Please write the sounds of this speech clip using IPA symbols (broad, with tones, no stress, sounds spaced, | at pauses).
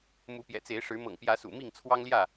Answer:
m u˨˦ p j ɛ̰˨˩ t͡s e˨˦ ɪ̯ ʂ ɻ̩˨˦ m ɤ̰˨˩ ŋ p j ä˨˦ s ṵ˨˩ m i˥˨ ŋ t͡sʰ w ɑ˦ ŋ l j ä˥˨